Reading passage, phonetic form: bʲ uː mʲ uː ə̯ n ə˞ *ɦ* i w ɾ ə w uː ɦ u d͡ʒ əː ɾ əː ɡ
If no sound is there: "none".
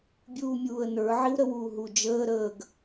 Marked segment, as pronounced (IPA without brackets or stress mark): ʕ